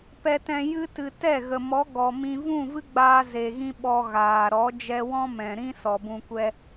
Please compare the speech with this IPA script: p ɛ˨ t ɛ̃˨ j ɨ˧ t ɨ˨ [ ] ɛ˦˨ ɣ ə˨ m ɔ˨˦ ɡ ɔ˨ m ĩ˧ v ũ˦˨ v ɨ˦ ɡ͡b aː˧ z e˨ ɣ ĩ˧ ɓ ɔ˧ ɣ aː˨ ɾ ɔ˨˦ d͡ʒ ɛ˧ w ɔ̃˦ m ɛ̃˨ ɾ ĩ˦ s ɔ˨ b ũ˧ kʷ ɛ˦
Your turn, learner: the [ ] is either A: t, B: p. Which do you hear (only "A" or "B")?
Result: A